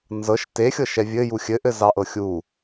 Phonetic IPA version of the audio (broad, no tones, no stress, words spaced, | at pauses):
nzɤʃ texʲɤʃɛ vʲɘju xʲɘʔɘzɑʔɤ xʲu